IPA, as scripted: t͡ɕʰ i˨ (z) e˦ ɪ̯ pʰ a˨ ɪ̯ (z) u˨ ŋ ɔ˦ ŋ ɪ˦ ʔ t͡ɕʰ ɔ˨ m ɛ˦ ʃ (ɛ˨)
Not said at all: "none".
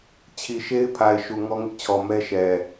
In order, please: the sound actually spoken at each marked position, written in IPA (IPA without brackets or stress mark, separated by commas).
ʃ, ʃ, ɛ˨